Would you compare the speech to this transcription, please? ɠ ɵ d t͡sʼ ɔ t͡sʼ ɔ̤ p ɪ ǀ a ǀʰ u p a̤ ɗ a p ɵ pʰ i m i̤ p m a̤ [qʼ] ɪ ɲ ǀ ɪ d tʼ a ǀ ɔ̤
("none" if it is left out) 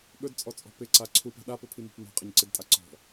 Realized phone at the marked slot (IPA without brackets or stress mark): qʼ